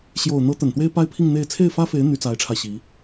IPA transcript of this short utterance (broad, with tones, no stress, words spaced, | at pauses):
ɕjo˨˩ʊ̯ n̪ɤ˧˥ t̪ə˨˩nt̪we˥ɪ̯pa˥ɪ̯pʰi˥˧ŋ n̪e˥˧ɪ̯ t͡sʰe˥˩ɪ̯fä˥fe˧˥ɪ̯ n̪y˧˥t͡sa˧˥ɪ̯ʈ͡ʂʰa˧ɪ̯ɕi˧˥